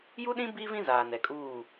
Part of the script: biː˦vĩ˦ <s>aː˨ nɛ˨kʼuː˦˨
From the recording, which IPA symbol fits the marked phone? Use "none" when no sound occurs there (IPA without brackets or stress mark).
z